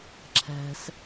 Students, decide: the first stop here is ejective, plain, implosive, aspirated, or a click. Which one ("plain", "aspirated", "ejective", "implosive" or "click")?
click